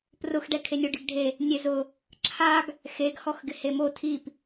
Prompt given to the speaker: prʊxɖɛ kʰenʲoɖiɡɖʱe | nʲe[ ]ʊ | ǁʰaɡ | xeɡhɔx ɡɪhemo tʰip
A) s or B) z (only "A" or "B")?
B